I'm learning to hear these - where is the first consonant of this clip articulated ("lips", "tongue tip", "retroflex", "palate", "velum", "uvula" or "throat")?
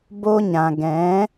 lips